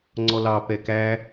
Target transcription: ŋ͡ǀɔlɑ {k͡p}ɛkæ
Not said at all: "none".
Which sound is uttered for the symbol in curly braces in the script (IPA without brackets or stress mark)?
p